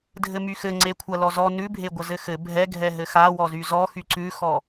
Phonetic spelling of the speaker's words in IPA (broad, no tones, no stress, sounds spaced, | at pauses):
dʱ ɘ m y x ɘ ŋ͡ǀ e kʷʰ ɐ l ɔ z ɔ n ʉ bʱ e ɡʷ ɐ z ɘ x ɘ bʱ ɛ ɡʱ ɛ ɦ ɘ x a w ɔ z y z ɔ x y ǀ ʉ x ɔ